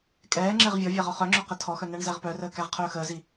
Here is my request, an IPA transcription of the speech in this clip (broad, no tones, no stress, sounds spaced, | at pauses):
kʼ ɛː ŋ͡ǁ ɛ ʁ vʲ ɔ vʲ æ ʁ ɒ χ œ ŋ͡ǁ œ q ɘ tʰ ɔ x œ n æ ɳ z æ ʁ p œ r əː k æ ʁ qʰ œː x əː z i